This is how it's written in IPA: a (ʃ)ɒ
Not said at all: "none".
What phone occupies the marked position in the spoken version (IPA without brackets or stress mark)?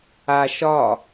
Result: ʃ